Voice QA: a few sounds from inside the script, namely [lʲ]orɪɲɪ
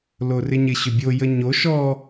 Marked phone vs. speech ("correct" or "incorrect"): incorrect